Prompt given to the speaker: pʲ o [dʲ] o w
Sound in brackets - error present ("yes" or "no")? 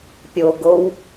yes